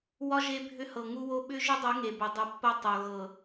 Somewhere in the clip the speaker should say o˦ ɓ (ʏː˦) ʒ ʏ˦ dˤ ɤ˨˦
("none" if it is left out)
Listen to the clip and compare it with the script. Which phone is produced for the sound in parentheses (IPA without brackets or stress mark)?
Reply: ʏ˦